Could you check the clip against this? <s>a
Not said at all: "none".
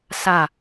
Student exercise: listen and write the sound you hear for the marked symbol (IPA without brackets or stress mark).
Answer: s